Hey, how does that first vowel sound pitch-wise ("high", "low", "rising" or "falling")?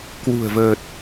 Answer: low